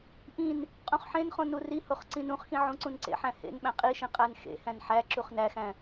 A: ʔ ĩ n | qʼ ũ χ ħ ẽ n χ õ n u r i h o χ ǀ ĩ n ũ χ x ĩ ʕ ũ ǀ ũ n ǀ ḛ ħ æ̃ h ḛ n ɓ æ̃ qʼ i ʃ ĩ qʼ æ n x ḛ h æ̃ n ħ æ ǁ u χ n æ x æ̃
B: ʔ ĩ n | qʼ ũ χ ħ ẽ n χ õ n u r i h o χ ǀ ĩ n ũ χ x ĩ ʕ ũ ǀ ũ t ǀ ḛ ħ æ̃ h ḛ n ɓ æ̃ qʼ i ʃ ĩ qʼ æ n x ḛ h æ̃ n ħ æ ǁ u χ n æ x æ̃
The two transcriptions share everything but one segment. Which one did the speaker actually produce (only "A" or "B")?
A